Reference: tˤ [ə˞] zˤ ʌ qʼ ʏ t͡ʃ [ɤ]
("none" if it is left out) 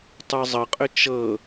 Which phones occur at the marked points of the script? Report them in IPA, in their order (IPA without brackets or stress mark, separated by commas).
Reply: ə˞, ɤ